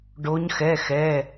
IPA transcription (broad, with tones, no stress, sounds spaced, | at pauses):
ɖ o˦˥ ɲ x ɛ˧˥˧ x ɛ˧˥˧